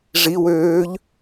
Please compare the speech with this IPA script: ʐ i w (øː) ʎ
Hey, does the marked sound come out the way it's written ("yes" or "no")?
yes